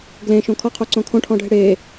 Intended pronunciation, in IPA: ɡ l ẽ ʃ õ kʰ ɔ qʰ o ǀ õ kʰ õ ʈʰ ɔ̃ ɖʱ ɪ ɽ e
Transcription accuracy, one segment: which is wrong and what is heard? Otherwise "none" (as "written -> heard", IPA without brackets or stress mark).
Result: none